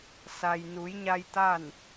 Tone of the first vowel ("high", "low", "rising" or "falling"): low